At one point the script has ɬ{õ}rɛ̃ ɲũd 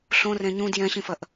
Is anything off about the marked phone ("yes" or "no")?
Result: no